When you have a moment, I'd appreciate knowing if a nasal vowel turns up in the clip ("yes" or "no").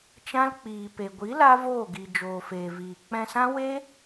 yes